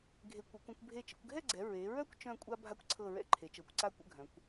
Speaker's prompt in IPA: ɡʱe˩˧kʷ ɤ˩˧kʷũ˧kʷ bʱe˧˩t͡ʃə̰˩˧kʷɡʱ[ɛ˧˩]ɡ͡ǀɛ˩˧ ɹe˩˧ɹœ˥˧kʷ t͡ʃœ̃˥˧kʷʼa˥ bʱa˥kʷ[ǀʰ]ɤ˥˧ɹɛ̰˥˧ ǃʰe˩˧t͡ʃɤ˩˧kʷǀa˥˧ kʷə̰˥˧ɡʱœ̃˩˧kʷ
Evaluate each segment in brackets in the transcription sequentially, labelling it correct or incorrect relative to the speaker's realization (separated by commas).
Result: incorrect, correct